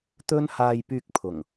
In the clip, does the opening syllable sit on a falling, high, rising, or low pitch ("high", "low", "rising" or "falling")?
high